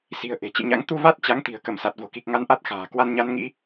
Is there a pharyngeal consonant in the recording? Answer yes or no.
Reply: no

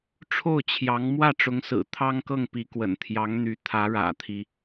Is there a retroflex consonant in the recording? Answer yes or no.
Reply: yes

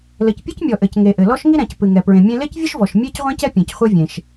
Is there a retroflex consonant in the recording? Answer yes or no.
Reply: no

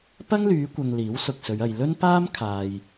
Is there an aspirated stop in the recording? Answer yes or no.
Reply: yes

